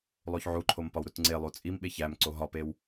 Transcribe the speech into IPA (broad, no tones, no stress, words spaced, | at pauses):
lˠoçʕuǃʰom pɒwɾutŋ͡ǀelˠu t͡sʼimɓe çæmǀo ɦɒpew